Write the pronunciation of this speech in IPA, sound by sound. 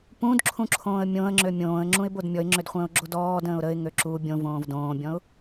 p ũ d ǁʰ ũ ǁʰ õː ə̯ mʲ õ ə̯ ŋ͡ǁ ø mʲ õː ə̯ ŋ͡ǁ ũ ɪ̯ b o d mʲ ɔ ɪ̯ ŋ͡ǁ ø d χʷ ə̃ː ʊ̯ ɡ͡ǁ o d ɔː d ə̃ː ʊ̯ ɾ ə ɪ̯ ŋ ø ǁ u bʲ õ v õː v d õː bʲ ɔ̃ ʊ̯

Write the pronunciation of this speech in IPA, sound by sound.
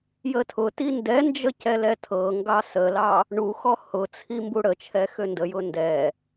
j ə tʰ ʊ t i n d ɛ n d͡ʒ ə c ɛ l ɛ tʰ ɤ ŋ ɡ ɑ s ə l ɑ | ɳ u x ɔ h ʊ t͡sʰ i m b u ɽ ə t͡ʃʰ ɛ x ø n d ə j ʊ n d ɛ

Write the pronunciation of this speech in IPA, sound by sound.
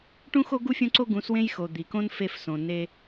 ʈ ũ˦ x o˦ ɡ u˦ fʲ õ˦ ǀ o˦ ɡ ũ˨˦ s w ẽ˦ j x o˨ d̪ i˨ k õ˦ n f e˧ f s õ˨ n e˧

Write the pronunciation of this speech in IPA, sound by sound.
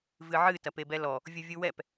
v ɨ ʕ ɨ t ɐ p e b ɛ l ɔ | vʲ u vʲ u w ɛ p

